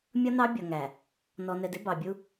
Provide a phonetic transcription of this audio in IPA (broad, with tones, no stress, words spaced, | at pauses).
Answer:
mʲʌ˦nɑ˦bʲʌ˨ŋæ˨ | nɔ˨nɛ˨dɪ˦ bɑ˨bʲu˦